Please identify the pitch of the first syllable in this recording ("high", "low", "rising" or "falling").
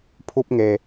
high